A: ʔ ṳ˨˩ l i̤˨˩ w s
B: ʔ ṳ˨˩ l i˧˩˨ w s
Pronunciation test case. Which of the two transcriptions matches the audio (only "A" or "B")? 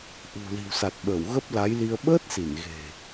A